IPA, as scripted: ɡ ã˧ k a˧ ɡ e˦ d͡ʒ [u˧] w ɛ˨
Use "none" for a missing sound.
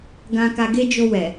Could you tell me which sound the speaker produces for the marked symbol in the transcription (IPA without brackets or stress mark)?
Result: o˧